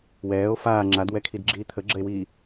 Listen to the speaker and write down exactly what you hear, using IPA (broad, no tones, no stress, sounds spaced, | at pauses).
w ɛː o̯ f aː ŋ͡ǁ a d w ɛ kʰ i d ɡ͡ǁ iː t̪ʰ ə ɡ͡ǁ ə e̯ w iː